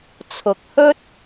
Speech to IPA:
t͡sʰ ʊ˨ k̚ h ɵ˥ t̚

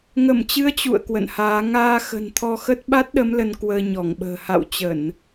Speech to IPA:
ŋ ə˧˩ m t͡ɕ ɨ˨˦ ə̯ t͡ɕ ṵ˧˨ ə̯ k w ə̰˧˨ n h aː˨˦ ŋ aː˧ x ə̤˨˩ n t̪ʰ ɔ˧ x ə˦˥ t̚ ɓ a˦˥ t̚ ɗ ə˨˦ m l ə˧ n k w əː˧ ɲ ɔ˧˩ ŋ ɓ ə̤ː˨˩ h a̰˧˨ w t͡ɕ ə˧˩˨ n

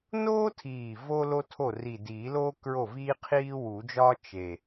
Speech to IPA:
n oː˥ tʰ iː˨˩ v o˥ l o˥ tʰ o˥˩ r i˨˩ d iː˨˩˦ l oː˥ k ɹ o˥˩ v iː˥ qʰ iː˥ w u˨˩˦ d͡ʒ ɒː˥ t͡ʃ e˨˩

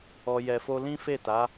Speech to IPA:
ɔ˧ j ɛ˨ f o˧ l ĩ˦ f e˦˨ t a˨˦

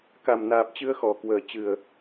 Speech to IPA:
k a˨˩ m n aː˨˩ p̚ t͡ɕ ɨ˧ ə̯ x ɔ˨˩ k w əː˨˩ t͡ɕ ɨ˨˩ ə̯

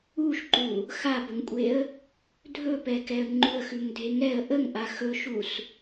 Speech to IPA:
u ʃ ǃ u | x a b ə ŋ kʷʼ e ə̯ | dʱ ɵ p ɛ k ɛ ə̯ ŋ͡ǃ u ə̯ x ʉ ŋ dʱ e ŋ ɛ ə̯ ʔ ə ŋ ʔ a x ɵ ʃ u s

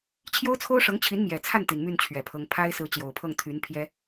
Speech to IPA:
t͡ɕʰ j o˥ ʊ̯ t͡sʰ o˥ ʊ̯ ʂ ɤ˧˥ ŋ t͡ɕʰ i˧˥ n m j ɛ˨˩ t͡sʰ a˥˩ n t̪ i˨˩ n m y˥˩ n t͡ɕʰ ɥ ɛ˨˩ pʰ ɤ˧˥ ŋ pʰ a˥ ɪ̯ s ɹ̩˧˥ t͡ɕ j o˨˩ ʊ̯ pʰ ɤ˥˩ ŋ t̪ʰ y˧˥ n pʰ j ɛ˥

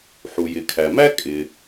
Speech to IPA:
ħ u˩ j ɪ˩ kʰ æ˩ m æ˥ kʼ ɪ˩

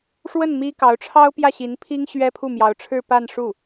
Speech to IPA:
ʂ w ə˥˩ n m i˥ k ɑ˧˥ ʊ̯ ʈ͡ʂʰ ɑ˥ ʊ̯ p j ä˥˩ ɕ i˧˥ n pʰ i˥ ŋ ɕ ɥ ɛ˥ pʰ u˥˩ m j ɑ˧˥ ʊ̯ ʈ͡ʂʰ ɻ̩˥˧ p a˥˧ n ʂ u˥˩

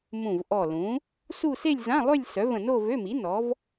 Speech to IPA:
m ũ˧˩ v ʔ ɔ˧˩ l ũ˩˥ | s u˥˧ s e˥˧ lʲ z ã˧˥˧ lˠ ø˥˧ lʲ s œ˩˥ v ə̃˧˩ n o˥˧ v ø˧˥˧ m i˩˥ n ɔ˩˥ v

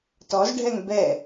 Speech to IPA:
t ɔ z ɖʱ ɛ ŋ b ɛ

